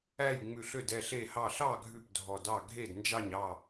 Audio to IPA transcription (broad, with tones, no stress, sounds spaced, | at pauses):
æ˥˨ j ŋ͡m ʉ˧˩ ɬ ø˥˨ d ɛ˧˩ ɬ e˧˩ h ɑ˧˩ ɬ ɑ˥˨ ɡʱ ʉ˥˨ p dʱ ɔ˧˩ d ɑ˥˨ ɡʱ e˥˨ d n d͡ʒ ɑ˥˨ ɲ ɑ˥˨